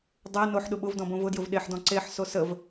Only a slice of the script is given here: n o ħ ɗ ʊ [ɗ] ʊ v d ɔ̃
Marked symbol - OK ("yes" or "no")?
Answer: no